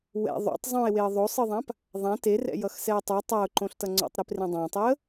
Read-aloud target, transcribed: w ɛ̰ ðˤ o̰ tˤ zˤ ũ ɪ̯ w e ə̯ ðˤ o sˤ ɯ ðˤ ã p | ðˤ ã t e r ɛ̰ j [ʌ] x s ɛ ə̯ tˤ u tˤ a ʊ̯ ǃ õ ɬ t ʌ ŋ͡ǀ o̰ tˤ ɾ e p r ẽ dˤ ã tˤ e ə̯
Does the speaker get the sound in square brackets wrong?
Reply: no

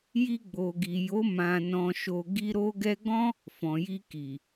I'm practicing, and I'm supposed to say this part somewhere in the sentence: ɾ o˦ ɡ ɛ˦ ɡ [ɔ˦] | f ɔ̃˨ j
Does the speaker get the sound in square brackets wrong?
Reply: yes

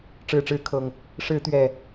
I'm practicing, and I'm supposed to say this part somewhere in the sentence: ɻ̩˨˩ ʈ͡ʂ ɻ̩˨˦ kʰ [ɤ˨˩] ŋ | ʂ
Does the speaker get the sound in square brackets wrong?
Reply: no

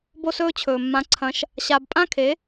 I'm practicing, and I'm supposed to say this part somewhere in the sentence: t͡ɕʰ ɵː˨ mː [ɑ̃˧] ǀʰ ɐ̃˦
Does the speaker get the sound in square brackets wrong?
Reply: yes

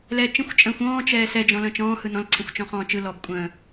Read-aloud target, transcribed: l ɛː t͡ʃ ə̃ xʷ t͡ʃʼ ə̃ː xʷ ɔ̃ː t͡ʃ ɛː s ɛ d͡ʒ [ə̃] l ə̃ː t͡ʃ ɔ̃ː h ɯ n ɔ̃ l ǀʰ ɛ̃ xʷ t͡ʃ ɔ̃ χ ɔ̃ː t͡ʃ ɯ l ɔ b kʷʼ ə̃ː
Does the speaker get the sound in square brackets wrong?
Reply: yes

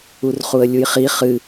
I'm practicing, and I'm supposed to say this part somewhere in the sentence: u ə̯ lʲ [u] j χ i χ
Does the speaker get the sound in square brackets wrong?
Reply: no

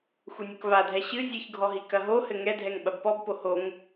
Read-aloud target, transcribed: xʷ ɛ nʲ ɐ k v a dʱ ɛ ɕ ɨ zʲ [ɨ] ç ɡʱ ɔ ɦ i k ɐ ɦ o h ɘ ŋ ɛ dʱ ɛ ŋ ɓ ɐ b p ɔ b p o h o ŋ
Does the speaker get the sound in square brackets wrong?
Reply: no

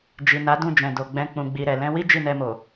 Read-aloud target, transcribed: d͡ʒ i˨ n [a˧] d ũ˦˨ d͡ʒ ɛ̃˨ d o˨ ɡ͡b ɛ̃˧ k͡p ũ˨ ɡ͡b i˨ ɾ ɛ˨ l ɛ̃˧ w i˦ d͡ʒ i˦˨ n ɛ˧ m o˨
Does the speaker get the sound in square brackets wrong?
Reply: yes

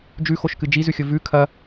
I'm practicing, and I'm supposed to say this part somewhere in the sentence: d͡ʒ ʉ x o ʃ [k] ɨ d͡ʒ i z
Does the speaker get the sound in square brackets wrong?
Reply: no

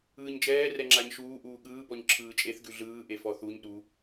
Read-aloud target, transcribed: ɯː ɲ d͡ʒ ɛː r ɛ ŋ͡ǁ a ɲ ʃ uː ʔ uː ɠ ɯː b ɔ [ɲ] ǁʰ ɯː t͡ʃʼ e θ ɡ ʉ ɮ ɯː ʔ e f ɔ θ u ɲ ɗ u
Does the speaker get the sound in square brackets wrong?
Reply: no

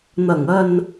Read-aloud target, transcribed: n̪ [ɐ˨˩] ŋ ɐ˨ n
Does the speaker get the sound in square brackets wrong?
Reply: no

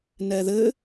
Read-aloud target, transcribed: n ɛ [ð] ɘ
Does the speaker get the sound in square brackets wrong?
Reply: no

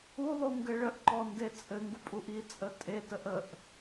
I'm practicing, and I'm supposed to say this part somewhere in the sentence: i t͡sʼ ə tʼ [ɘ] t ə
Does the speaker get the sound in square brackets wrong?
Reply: yes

